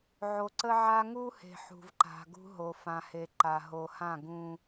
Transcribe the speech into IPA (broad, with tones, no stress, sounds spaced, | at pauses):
ʕ o˨ ǀ ə˦ ʕ a˦ ŋ u˦ h e̤˨ ħ ṳ˨ v ǃ a̤˨ ɡ ṳ˦ ɦ o˨ f ã˨ h e˨ ǃ a˨ ɦ o˨ h ã˦˨ ɡ ũ˦